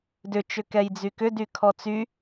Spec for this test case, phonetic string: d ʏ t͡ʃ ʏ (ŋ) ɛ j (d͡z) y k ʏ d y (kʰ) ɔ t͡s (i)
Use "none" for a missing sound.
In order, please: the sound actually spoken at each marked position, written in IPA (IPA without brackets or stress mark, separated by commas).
k, d͡z, kʰ, y